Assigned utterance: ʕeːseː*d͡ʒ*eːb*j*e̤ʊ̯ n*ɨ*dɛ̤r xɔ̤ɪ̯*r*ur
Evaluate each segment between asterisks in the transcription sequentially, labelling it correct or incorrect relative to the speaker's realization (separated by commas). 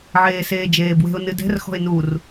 correct, incorrect, correct, incorrect